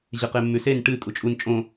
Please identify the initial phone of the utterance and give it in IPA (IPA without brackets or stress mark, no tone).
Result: ʑ